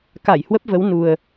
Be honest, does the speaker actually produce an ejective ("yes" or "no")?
no